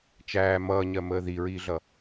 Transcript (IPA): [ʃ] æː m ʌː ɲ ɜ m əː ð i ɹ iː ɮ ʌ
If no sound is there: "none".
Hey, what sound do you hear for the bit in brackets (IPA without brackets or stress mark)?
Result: t͡ʃ